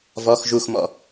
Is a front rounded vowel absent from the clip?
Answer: yes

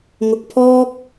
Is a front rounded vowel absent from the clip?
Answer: yes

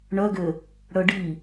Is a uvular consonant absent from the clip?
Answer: yes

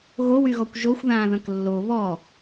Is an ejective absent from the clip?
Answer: yes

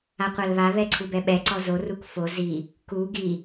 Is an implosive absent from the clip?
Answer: no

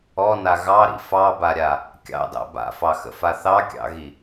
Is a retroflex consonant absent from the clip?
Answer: yes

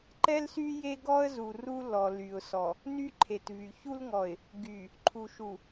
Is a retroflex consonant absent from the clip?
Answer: yes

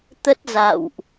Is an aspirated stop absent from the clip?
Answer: yes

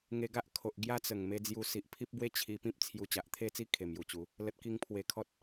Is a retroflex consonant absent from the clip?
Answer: yes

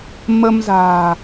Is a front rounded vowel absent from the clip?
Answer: yes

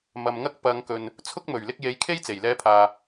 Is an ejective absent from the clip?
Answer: yes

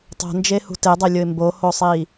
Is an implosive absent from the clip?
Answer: yes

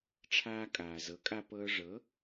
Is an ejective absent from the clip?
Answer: no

